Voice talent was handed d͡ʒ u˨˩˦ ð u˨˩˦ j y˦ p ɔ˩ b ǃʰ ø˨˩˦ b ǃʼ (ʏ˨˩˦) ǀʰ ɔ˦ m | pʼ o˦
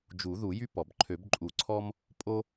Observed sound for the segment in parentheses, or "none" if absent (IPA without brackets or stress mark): u˨˩˦